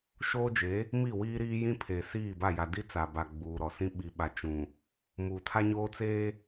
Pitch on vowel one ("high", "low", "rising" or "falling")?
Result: high